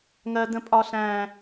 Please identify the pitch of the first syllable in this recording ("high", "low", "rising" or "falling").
high